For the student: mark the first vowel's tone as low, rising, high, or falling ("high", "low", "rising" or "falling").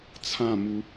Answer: falling